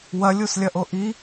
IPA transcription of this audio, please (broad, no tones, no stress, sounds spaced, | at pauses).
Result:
w ɐ lʲ u s lʲ ɐ ʔ o ʔ i